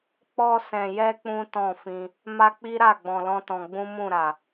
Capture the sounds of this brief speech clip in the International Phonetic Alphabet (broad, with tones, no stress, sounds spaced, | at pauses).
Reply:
k͡p ɔ˧ s ɛ̃˨ j ɛ˧ k͡p ũ˦ t ɔ̃˦˨ f ĩ˧ | m a˦ k͡p i˦ ɾ a˦˨ ɡ͡b ɔ̃˧ l ɔ̃˦ t ɔ̃˧ ɡ͡b ũ˦ m ũ˦˨ ɾ a˨